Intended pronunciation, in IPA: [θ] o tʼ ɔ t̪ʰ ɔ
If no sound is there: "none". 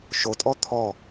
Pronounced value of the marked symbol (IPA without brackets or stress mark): ʃ